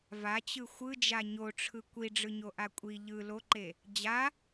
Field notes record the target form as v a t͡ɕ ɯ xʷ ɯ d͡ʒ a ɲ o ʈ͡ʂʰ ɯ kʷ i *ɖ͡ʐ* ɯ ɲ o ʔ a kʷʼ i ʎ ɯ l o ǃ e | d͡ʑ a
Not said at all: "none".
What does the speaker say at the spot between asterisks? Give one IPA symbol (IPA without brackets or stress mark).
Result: ɖ͡ʐ